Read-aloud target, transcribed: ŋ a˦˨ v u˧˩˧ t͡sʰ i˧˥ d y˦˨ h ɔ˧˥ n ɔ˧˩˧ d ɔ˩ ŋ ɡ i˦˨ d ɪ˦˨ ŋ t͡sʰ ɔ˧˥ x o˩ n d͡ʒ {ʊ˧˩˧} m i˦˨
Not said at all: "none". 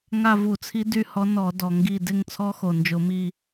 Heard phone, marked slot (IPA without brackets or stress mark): ʊ˧˩˧